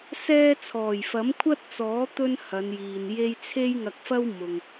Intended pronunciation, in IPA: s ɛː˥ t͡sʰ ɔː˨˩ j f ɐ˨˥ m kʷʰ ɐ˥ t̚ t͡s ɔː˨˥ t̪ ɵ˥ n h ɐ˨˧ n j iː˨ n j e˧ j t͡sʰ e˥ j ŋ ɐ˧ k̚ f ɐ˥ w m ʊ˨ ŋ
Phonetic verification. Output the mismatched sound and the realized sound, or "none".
none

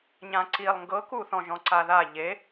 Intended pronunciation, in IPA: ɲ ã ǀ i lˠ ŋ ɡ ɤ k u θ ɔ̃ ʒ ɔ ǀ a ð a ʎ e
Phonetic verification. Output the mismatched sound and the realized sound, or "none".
ɔ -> ɔ̃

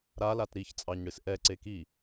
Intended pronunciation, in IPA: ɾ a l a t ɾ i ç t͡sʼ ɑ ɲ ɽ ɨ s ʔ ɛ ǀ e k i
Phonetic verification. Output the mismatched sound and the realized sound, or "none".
none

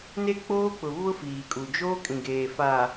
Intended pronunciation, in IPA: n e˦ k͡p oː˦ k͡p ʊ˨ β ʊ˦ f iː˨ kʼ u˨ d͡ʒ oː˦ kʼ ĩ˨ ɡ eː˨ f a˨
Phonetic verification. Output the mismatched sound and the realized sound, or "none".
none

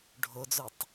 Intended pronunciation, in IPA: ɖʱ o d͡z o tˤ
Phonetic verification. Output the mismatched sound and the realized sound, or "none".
none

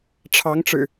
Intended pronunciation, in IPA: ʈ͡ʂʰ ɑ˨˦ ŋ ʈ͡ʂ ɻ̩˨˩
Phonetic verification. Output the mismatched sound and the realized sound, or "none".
none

